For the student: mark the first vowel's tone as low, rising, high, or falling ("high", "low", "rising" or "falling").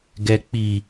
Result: low